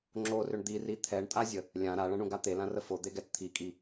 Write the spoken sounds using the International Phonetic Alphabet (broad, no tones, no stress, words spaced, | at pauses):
ŋ͡ǁorʏɳ d̪iri t̪ʰɛɳtʼazʲə | lʲã ɾaɭɐ̃ɳũɡa t̪elãrə fod̪eɡɛt t̪ʰikʼi